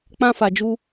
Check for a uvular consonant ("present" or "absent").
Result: absent